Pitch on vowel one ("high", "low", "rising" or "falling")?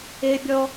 high